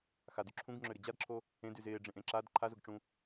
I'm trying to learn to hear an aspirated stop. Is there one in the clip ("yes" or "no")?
yes